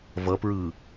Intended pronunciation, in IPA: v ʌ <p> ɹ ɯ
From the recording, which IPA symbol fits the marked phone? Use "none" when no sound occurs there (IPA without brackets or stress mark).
p